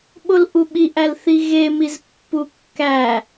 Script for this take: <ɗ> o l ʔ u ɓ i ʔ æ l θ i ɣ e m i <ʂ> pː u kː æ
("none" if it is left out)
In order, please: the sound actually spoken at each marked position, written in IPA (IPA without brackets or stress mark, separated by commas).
ɓ, z